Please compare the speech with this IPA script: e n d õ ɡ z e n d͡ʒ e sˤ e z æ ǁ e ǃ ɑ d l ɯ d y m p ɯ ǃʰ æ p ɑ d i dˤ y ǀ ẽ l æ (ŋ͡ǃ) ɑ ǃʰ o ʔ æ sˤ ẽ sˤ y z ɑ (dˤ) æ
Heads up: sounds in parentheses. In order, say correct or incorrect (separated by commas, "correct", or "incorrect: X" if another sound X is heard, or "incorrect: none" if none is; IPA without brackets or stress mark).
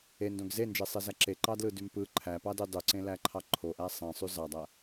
incorrect: ǃʰ, correct